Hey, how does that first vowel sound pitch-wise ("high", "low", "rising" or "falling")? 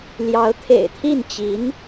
rising